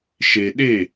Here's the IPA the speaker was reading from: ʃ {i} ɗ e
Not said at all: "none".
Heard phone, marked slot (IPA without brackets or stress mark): e